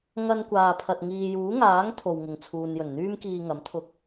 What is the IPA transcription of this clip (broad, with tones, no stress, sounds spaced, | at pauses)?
ŋ ɐ˧ n kʷ aː˨ pʰ ɐ˨ t̚ ŋ iː˨ j uː˨˥ ŋ aː˨˥ ŋ t̪ʰ o˨ w ŋ ɪ˨˩ ŋ t͡sʰ uː˨ n j ɵ˨˩ n n̪ yː˥ m k iː˧ ŋ ɐ˨˥ m t̪ʰ ʊ˧ k̚